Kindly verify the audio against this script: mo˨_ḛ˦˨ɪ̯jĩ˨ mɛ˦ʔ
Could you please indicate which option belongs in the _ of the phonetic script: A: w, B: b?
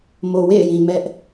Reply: A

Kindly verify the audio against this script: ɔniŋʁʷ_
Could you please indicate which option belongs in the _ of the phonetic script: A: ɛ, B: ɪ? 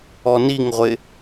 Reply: B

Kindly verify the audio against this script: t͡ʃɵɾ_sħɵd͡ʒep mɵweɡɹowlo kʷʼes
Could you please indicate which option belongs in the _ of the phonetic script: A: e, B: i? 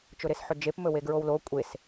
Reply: A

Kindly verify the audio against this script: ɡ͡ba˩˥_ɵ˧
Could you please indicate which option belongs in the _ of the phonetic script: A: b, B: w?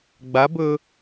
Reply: A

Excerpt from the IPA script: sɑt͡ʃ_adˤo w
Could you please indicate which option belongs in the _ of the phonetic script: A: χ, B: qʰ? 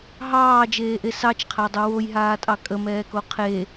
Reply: B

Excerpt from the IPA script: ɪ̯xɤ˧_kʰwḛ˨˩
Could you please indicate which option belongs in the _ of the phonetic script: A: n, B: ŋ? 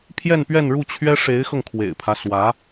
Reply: B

